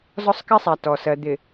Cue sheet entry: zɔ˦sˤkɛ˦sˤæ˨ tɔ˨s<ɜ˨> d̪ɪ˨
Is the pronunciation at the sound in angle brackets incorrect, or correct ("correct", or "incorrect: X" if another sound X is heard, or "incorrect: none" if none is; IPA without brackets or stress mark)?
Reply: correct